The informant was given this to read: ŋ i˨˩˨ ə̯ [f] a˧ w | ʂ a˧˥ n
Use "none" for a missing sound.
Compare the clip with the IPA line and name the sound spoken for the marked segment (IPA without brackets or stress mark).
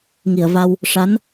v